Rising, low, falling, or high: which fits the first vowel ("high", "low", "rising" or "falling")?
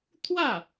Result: falling